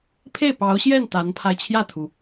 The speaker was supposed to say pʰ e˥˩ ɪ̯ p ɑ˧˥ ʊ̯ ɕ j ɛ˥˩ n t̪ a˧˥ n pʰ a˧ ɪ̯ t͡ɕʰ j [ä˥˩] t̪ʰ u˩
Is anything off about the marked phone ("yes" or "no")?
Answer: no